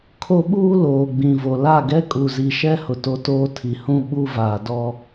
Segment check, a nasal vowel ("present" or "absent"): present